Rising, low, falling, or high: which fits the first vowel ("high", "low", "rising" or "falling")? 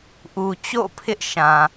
low